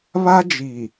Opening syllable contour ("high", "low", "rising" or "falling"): high